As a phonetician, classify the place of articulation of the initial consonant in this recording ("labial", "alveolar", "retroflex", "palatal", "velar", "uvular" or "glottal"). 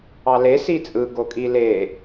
alveolar